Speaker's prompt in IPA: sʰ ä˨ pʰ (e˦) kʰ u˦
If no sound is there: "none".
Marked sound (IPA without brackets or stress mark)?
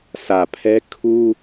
ɛ˦